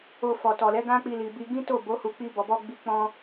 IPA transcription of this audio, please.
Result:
o˧ f ɔ˨ t ɔ˨ l ɛ˨˦ ɡ ã˦ k͡p i˧ l i˨ b i˧ ɡ ĩ˦ t o˦˨ b o˨˦ h u˧ k͡p i˧ b ɔ˨ b ɔ˧ ɡ͡b i˧ k͡p ɔ̃˧

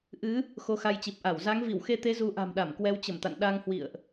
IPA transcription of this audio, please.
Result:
ʔ ɨ˨˦ | x o˧ x a˧ j t͡ɕ i˨˩ p̚ ʔ a˧˩ w z a˨˦ ŋ v i˧˩ w x e˧ t̪ e˨˦ z u˨˦ ʔ a̤˨˩ m ɗ a˧˩ m k w ɛ˨˦ w t͡ɕ ə˧˩ m t̪ a̰˧˨ n ɗ a˧ ŋ h w ḭ˧˨ ə̯ ʔ

